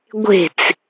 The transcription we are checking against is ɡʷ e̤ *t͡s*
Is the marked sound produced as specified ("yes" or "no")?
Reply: yes